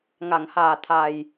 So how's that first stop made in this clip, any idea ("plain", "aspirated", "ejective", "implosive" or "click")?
aspirated